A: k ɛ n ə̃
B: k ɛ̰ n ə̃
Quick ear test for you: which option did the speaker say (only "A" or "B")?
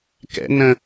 B